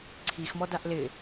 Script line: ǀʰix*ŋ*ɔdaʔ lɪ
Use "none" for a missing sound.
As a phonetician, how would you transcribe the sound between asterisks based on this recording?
m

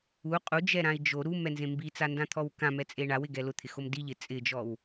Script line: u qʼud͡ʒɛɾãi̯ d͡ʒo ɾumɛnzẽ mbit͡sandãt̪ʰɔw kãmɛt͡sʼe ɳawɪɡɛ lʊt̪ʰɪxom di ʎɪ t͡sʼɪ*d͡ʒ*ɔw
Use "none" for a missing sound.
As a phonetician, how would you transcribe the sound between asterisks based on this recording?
d͡ʒ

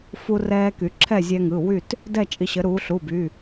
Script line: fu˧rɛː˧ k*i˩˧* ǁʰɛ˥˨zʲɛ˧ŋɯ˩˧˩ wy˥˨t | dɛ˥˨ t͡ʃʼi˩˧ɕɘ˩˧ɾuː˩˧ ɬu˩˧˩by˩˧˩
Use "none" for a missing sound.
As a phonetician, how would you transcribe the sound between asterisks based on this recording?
y˩˧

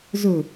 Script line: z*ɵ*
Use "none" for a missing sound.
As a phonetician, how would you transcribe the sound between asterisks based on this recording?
ɵ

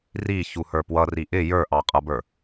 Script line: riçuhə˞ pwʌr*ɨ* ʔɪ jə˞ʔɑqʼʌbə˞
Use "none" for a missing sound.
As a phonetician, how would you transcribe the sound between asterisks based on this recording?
i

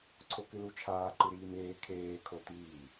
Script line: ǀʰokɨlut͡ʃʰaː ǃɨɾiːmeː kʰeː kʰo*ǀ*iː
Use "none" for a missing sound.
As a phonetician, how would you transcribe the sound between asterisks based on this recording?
t̪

